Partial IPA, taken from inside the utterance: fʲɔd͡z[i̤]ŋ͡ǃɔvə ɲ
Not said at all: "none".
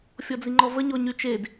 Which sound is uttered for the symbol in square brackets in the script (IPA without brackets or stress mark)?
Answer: i